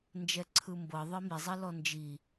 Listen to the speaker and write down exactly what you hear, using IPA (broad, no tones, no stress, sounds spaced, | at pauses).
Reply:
n d͡ʒ ɛ ǀʰ ɯ m b ɤ ðˤ e m i zˤ i l ɔ n d͡ʒ i